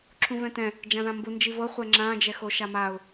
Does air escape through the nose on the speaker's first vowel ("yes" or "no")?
yes